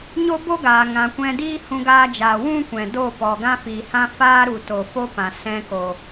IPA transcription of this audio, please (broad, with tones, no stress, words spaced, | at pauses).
ɲo˦bo˦ɡaː˨ ŋã˨kʷɛ̃˧ diː˦hũ˧ɡaː˧d͡ʒaː˨ wũ˦kʷɛ̃˨do˦˨ pɔ˨ɡã˦fi˨ hã˦faː˦ ɾu˨to˨fo˦ pã˨ sɛ̃˧ko˨